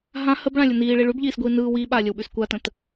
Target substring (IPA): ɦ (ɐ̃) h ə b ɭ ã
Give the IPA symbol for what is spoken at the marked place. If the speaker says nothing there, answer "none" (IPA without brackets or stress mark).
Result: ã